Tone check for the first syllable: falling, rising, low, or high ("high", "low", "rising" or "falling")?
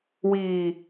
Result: low